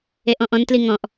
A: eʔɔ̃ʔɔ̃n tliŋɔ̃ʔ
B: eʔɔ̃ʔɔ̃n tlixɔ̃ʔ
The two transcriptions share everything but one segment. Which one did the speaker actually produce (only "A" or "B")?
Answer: A